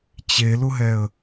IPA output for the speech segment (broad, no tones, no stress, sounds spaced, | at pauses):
t͡ɕ e l ʊ ɦ ɛ ə̯